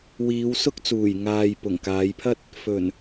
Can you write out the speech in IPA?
w iː˨˧ w s ʊ˥ k̚ t͡s uː˨˩ j ŋ aː˨ j p ʊ˨˩ ŋ k aː˨˧ j pʰ ɐ˥ t̚ | f ɵ˨˩ n

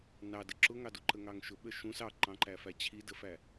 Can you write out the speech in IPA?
n ɑ d ə ǁ ʊ ŋ ɑ d u ǃ ə ŋ ɑ ŋ ʃ ʊ ɓ ə ʃ ũ s ɑ ǃ ɑ̃ ǃ æ f æ t͡ɕʰ i d ə f æ

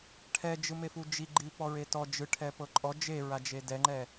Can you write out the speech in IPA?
ʈʰ ɛ d͡ʒ ɯ m e f u d͡ʒ i ɡ͡ǃ i p ɔ ɹ e t ɔ d͡ʒ ɯ ʈʰ ɛ p ɤ ǃʼ ɔ d͡ʒ e ɹ a d͡ʒ e d ɛ ŋ͡ǃ ɛ

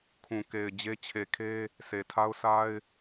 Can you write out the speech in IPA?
kʰ ũ˨ k e˨ ɪ̯ d͡ʑ e˦ t͡ɕʰ e˨ kʰ e˦ | s e˨ tʰ a˦ ʊ̯ sʰ a˦ ɪ̯

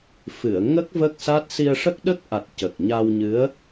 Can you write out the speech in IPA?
f ɨ˨˩˨ ə̯ ŋ ə˦˥ k̚ v ə˦˥ k̚ s a˦˥ t̚ s i˧ ə̯ ʂ ə˦˥ k̚ ɗ ə˦˥ k̚ ʔ a˨˩ t̚ c ə˨˩ k̚ ɲ a˧ w ɲ ɨ˧˥ ə̯

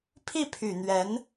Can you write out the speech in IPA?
pʰ i˥˩ pʰ y˨˩ n̪ ɥ ɛ˧˥ n

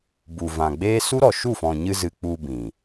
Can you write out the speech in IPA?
b u˨ v ã˨ ɡ͡b eː˦ s u˦ ɾ ɔ˨ ʃ u˦˨ f ɔ̃˨ ɲ ɨ˧ z ɨ˨ k͡p u˧ b ĩ˨

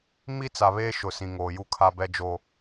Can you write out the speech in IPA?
m i˦ t͡s a˨ β eː˦ ʃ ʊ˨ s ĩ˨ ŋ oː˨ j u˦ kʰ a˦ b ɛ˦ d͡ʒ oː˦

